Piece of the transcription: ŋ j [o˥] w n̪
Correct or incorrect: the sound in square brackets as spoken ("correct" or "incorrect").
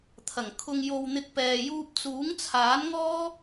incorrect